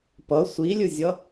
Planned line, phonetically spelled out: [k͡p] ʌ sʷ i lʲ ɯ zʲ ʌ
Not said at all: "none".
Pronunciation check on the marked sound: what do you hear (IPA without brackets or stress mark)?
p